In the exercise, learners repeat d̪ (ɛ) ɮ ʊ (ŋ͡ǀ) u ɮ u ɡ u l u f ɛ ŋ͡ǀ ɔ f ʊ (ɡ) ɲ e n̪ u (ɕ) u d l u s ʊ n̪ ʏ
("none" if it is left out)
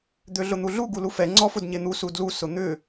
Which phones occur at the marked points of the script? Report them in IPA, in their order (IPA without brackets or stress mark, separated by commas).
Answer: ø, n̪, d, s